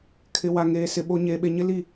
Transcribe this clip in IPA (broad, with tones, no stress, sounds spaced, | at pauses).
kʰ ɪ˨ w a˨ ŋ eː˨ s ɪ˨ ɓ o˨ ɲ eː˨ ɓ e˨ ɲ ɪ˦ l i˦˨